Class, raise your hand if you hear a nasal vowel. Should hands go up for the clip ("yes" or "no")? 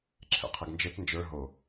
no